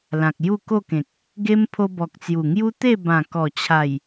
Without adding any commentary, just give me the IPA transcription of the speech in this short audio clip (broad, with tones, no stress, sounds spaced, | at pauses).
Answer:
l ã˨ k̚ j u˥˧ k o˥˧ k ẽ˨ k̚ | ɡ e˦ m pʰ o˧ b ɔ˨ k̚ t͡s j u˨˩ ŋ j u˦ t̪ e˥˧ b ã˨˩ k ɔ˨˩ t͡ɕʰ a˨˩ j